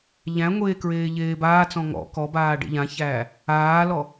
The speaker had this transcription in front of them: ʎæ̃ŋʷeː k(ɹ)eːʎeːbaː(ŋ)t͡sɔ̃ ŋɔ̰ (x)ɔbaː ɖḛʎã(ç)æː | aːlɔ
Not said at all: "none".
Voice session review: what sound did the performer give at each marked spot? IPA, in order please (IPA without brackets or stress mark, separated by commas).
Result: ɹ, none, k, ç